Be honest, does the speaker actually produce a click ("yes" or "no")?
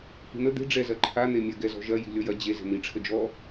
yes